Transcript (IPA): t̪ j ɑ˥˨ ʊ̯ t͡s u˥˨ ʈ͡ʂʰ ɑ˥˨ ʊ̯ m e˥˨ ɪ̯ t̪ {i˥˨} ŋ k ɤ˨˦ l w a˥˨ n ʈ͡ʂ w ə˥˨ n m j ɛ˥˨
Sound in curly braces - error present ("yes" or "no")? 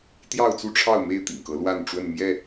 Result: yes